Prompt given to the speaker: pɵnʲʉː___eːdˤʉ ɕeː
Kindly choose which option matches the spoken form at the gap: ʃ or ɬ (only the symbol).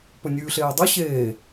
ɬ